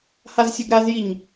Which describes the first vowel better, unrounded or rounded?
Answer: unrounded